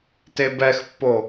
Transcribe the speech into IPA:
t e b ɛ x pː o

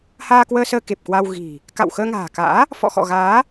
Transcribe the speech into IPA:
h aː˧ k w əː˧ s əː˧ k e˨˩ p̚ k w a˧ w ɣ i̤˨˩ | k a̰˧˨ w x əː˧ ŋ a̤ː˨˩ k a̰ː˧˥ | f ɔ̰˧˨ x ɔ̰˧˨ ɣ aː˨˦

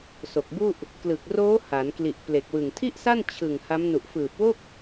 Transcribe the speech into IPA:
s o˨˩ k̚ b u˥˩ ʔ | k l ɯ˨˩ k̚ r oː˦˥ h a˩˦ n k l i˨˩ ʔ p l e˨˩ k̚ w ɯ˨˩ ŋ tʰ i˥˩ ʔ s a˥˩ n t͡ɕʰ ɯ˨˩ ŋ h a˦˥ m n u˨˩ ʔ f ɯː˨˩ p̚ w o˥˩ k̚

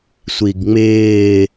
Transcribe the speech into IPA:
sʷ i ɡ ŋ͡m ɪː

